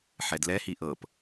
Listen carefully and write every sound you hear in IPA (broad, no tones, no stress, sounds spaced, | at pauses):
ħ ɛ d l ɛ h i ʔ ɤ p